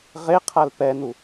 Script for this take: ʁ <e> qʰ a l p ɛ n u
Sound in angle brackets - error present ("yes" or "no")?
no